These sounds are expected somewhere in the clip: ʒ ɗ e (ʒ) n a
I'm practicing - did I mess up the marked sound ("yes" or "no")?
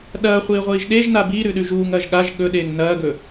no